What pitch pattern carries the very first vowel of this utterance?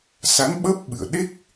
rising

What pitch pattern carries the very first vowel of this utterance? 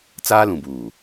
high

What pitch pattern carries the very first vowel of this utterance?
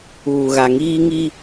low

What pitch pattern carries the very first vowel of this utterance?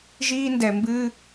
high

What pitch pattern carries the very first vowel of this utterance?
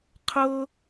high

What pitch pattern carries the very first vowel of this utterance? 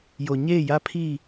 low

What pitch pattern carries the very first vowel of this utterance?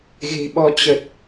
low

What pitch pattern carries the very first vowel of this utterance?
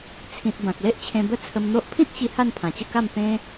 low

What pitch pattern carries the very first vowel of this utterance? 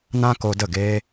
high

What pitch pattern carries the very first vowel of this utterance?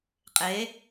rising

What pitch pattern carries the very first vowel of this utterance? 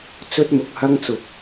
high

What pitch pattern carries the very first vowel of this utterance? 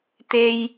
high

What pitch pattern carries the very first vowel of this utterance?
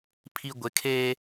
high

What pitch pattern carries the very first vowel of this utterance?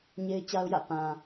high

